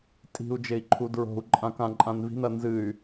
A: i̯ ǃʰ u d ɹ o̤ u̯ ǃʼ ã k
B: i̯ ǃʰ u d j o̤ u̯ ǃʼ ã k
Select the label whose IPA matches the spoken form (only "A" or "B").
A